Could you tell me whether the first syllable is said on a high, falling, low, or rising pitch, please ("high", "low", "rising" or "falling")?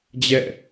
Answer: falling